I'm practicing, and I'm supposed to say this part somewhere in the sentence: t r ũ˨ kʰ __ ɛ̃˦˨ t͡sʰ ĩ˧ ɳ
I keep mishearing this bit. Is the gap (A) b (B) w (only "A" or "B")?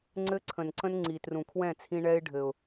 B